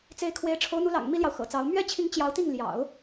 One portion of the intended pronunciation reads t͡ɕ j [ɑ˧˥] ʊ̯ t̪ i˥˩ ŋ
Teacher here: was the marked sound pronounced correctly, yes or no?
yes